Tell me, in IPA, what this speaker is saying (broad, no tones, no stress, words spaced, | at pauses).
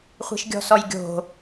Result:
χʷi̤ʃɡʲɔ̤sɔjɡʲo̤